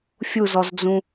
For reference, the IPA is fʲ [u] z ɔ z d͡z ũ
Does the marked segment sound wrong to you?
no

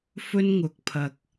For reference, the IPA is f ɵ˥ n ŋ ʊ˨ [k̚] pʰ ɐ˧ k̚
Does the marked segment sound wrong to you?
no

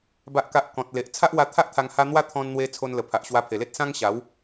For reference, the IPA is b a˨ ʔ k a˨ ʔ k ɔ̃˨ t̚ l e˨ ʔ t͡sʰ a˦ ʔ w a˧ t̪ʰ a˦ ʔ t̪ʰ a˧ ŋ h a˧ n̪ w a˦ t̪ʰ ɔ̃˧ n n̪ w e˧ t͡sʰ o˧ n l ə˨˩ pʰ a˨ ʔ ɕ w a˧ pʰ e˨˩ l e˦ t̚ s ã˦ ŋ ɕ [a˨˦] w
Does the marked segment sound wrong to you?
no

